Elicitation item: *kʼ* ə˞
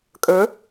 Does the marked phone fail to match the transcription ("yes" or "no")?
no